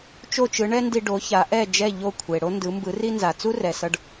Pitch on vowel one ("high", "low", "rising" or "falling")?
falling